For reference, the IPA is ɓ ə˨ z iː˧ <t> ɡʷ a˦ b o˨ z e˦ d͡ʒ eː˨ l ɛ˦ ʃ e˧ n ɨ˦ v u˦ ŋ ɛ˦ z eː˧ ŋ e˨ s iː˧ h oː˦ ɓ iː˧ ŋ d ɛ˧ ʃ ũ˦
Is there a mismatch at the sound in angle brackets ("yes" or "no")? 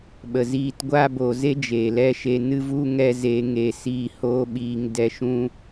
no